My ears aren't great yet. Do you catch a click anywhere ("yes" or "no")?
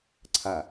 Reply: yes